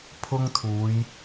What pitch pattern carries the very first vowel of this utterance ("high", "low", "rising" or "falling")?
high